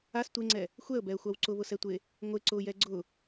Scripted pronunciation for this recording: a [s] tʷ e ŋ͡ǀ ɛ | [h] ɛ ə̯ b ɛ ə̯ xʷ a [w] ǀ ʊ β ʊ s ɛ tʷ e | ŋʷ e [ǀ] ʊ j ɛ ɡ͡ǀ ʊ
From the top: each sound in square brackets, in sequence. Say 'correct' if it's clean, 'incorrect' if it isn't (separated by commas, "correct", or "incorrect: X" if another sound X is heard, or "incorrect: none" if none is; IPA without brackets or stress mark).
correct, incorrect: xʷ, correct, correct